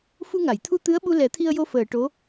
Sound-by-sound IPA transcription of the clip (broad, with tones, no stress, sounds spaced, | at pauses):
f u˧ ŋ a˨˩˨ j t̪ʰ u˧ t̪ ɨ˧˥ ə̯ ɓ u˧ l ɛ˨˩˦ t̪ʰ i˧ ə̯ j o˧ f əː˨˩˨ ʈ o˧˥